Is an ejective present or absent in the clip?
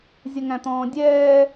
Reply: absent